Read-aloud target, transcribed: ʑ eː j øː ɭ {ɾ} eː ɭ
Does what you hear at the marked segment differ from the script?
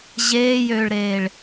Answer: no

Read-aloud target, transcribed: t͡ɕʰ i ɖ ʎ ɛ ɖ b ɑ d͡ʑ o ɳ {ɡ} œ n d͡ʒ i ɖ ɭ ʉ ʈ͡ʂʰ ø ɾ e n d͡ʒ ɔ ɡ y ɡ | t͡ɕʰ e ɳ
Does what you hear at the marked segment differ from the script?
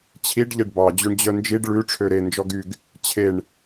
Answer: yes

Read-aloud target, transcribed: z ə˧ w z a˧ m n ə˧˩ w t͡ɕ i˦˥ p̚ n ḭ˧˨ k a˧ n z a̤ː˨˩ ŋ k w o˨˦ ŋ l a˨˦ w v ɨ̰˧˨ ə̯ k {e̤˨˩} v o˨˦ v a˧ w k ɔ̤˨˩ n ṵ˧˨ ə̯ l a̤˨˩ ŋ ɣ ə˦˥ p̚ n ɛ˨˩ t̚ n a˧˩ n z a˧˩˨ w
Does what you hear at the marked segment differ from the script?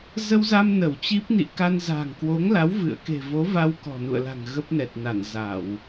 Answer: no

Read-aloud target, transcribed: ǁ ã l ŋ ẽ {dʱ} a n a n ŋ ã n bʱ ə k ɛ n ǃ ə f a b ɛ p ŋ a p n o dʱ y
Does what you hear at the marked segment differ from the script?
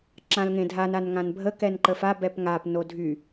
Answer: no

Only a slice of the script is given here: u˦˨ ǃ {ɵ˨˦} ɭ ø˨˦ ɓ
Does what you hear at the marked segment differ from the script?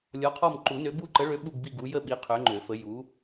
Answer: yes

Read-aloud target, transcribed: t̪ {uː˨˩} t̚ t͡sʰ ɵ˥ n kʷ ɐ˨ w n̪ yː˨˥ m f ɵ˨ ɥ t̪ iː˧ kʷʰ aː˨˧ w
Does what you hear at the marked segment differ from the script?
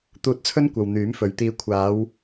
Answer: yes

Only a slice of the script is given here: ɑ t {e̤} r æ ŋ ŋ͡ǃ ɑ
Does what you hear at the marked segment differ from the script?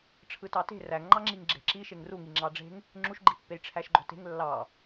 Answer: no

